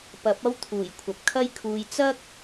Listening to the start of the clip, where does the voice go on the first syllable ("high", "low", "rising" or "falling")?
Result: rising